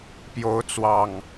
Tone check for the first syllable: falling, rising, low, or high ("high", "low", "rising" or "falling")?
rising